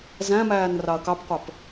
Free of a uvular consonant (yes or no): no